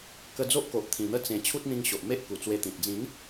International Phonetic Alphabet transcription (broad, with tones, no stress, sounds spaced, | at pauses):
k ə˧ d͡z o˦ ʔ k o˨ ʔ t̪ʰ ĩ˨˩ n̪ ə˥˧ t͡s ẽ˨˩ t͡ɕʰ u˦ t̚ n̪ ĩ˧ ŋ ɕ o˨ ʔ m e˦ ʔ k u˨˩ t͡s w e˧ t̪ ĩ˨ t̚ d͡z ĩ˨˦ n